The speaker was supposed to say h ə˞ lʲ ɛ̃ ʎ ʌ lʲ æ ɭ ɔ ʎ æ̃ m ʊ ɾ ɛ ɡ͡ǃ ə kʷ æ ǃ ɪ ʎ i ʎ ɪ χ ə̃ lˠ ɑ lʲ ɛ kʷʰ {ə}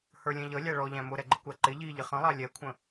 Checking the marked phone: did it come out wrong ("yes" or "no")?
yes